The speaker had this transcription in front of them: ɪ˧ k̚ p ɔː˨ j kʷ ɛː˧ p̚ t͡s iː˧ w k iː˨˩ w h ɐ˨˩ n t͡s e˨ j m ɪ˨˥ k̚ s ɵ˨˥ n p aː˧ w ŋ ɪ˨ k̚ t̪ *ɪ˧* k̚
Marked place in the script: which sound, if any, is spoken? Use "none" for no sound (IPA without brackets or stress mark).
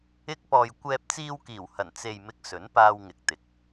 ɪ˨